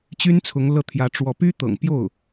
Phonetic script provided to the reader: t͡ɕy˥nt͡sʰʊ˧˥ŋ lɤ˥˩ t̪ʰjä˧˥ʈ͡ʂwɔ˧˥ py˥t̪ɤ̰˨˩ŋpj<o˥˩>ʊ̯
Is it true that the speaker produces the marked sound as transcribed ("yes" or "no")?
yes